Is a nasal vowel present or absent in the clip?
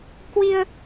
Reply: absent